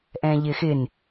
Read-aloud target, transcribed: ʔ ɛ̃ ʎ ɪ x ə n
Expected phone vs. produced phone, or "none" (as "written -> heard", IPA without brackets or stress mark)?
ə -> ɪ